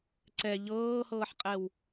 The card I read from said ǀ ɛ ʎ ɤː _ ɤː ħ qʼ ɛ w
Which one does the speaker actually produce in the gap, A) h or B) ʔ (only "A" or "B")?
A